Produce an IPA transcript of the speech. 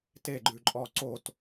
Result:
t e ɡ͡ǃ ʉ ǃʼ ɔ ǀ o t

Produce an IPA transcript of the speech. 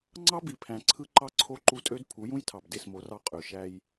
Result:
ŋ͡ǀ ɑ˦ b i˨ pʰ æ̃˨ ǀʰ ɯ˦ ǃ ɑ˦ ǀʰ o˦˨ ǃ u˦ tʼ ø˦ d pʰ u˨˦ j ũ˦ j tʰ ɑ˨ b d e˦˨ s m o˨˦ r ɑ˦ qʼ ø˨ ʃ æ˦ j

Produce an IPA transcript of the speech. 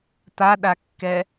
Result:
t̪ a ɗ a kː ɛ

